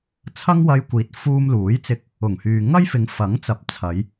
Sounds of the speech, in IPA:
t͡sʰ ɐ˥ ŋ w ɐ˧ j kʷ iː˨˥ t̚ f uː˧ m l uː˨˥ j t͡s ɪ˧ k̚ | ʊ˨˩ ŋ h yː˨ ŋ ɐ˥ j f ɪ˨˧ ŋ f ɐ˨˥ ŋ t͡s ɐ˨ p̚ t͡sʰ ɐ˨˧ j

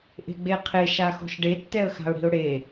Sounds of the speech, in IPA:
ʔ e̤ ɡ͡b e qʰ e ʃ a x ɔ̤ ʃ ɖ e tː ɛ ə̯ x a̤ ʊ̯ ɽ i̤ ʊ̯ ɽ e

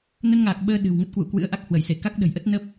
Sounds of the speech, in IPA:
n ə˧ n ŋ aː˨˩ k̚ ɓ əː˧ ɗ ɨ̤˨˩ w ŋ ə˦˥ t̚ k w ṵ˧˨ k w ɨ̰˧˥ ə̯ ʔ a˦˥ k̚ h w ə˧˩ j s e˧˩ k a˦˥ k̚ ɗ ə̤˨˩ j ʔ ə˦˥ t̚ n ə˦˥ p̚

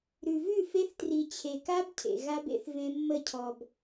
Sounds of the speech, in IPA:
ɾ ʉ˨ v ʉ˦˨ f e˦ θ t r i˨ t͡ɕʰ e˨ k a˦ b cʰ ḛ˨ ɣ a˦ b ḛ˦ θ v ẽ˦ mː ə˦˨ cʰ ɔ˨ b

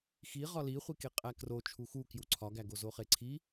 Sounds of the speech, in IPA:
x i ʁ ɒ l i χʷ i k e qʼ æ k r o t͡ʃʰ u x u k j u ǀʰ ɒ ɡ æ ɡ o z o χ e ǀʰ i

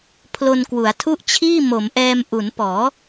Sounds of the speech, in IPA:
pʰ l o˧ n k w u˩˦ a̯ tʰ u˥˩ ʔ t͡ɕʰ iː˥˩ m o˩˦ m ʔ ɛː˧ m ʔ u˩˦ n p ɔː˩˦

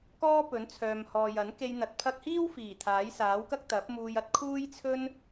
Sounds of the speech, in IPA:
k ɔː˥ p ɵ˨˥ n t͡sʰ œː˨ m h ɔː˨ j ɐ˨˥ n k e˧ j n̪ ɐ˨˥ t̚ pʰ ɐ˧ k̚ h iː˥ w f iː˨˩ t̪ʰ aː˨˥ j s aː˨˥ w k ɐ˥ k̚ t̪ ɐ˨˥ p̚ m uː˧ j ɐ˥ t̚ kʰ uː˥ j t͡sʰ ɵ˥ n

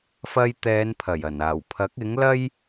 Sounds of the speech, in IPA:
f ɐ˧ j t̪ ɛː˨˧ n pʰ ɐ˨˩ j ɐ˨˩ n aː˨˩ w pʰ ɐ˨˥ k̚ ɪ˨˥ ŋ l ɐ˥ j

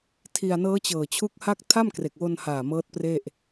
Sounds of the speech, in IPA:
tʰ i˧ a̯ n ɤː˦˥ t͡ɕ ɤː˨˩ t͡ɕʰ u˦˥ k̚ h a˥˩ k̚ tʰ a˥˩ m k r e˨˩ k̚ w o˧ n h aː˨˩ m ɤː˦˥ t̚ p r e˥˩ ʔ

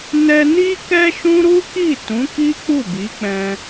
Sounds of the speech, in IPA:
n ɛ˧ n i˦ k ɛ˦ ʃ ũ˦ ɾ u˦ k i˦˨ t ũ˨˦ k i˦ k͡p u˦˨ b i˨˦ k͡p ɛ̃˧

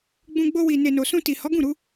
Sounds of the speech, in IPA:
ɡ͡b ũ˧ ɡ͡b o˧ w i˨ n e˨ n o˨ s ũ˧ t i˨ h ɔ˨˦ ɡ ũ˦˨ ɾ u˨˦

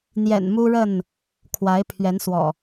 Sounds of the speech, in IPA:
n̪ j ɛ̰˨˩ n m u˦ ɻ ə˥˨ n | kʰ w a˨˦ ɪ̯ pʰ ɥ ɛ˨˦ n s w ɔ̰˨˩

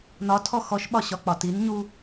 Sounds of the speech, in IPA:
n ɒ tʰ ɔ x ɔ ʃ ɓ ɒ ɕ ɒ k͡p ɒ t i n ɲ u

